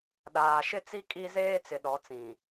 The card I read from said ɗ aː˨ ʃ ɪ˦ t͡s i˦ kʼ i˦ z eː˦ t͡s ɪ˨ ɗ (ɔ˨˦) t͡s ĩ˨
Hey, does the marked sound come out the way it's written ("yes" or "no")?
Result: yes